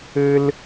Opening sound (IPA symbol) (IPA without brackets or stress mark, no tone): ɘ